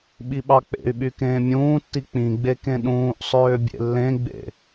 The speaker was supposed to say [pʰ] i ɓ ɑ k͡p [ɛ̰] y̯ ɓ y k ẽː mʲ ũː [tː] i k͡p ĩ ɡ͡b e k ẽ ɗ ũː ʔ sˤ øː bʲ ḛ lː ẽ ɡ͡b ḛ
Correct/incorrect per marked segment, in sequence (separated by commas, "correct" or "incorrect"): incorrect, incorrect, correct